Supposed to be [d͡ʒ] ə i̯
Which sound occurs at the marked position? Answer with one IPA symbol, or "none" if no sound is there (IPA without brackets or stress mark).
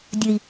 dʲ